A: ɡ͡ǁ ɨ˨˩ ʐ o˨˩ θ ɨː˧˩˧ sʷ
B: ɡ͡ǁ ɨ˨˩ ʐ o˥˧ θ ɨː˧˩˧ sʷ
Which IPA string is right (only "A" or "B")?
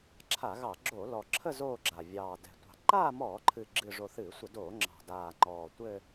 A